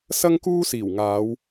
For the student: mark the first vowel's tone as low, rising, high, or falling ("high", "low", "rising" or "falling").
high